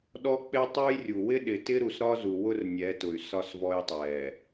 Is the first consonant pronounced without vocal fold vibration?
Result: no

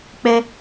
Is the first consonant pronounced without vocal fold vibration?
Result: yes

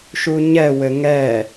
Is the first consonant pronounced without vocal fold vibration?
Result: yes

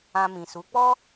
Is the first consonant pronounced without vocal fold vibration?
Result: no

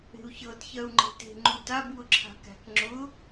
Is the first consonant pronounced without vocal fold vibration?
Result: yes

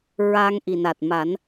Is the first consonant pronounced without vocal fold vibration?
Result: no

